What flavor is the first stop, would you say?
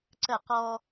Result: click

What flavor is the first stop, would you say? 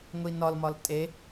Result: ejective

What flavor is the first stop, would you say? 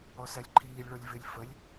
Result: click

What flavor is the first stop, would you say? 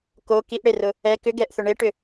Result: plain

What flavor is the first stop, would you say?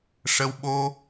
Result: implosive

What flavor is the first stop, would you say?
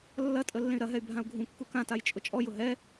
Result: ejective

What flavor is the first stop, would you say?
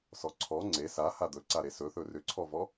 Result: click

